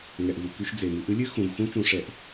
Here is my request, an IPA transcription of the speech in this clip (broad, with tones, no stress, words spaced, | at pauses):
ŋɛ˨ʔvu˨ ky˧ʃ d͡ze˨mɨ˨˦ʔ ɨ˦lʲɨ˦ xũ˨vxũ˦ t͡ʃũ˧ʂɛ˧ʔ